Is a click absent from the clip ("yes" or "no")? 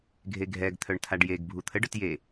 yes